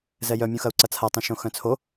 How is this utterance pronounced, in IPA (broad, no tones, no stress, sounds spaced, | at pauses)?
z ɛ j œ mʲ ũ x ɐ u̯ ǀ ɐ t͡sʰ a tˤ ɛ̃ ʃ õ x œ̃ t͡sʰ o